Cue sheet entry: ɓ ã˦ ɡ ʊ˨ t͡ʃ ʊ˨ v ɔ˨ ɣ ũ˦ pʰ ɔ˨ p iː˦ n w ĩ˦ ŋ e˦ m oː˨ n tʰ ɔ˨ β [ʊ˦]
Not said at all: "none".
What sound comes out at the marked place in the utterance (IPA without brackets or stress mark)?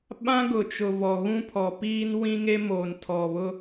ʊ˦